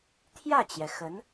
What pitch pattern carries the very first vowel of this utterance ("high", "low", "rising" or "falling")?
falling